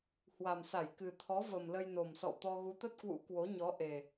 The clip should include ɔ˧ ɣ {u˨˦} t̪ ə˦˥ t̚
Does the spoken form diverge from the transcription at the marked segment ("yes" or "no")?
no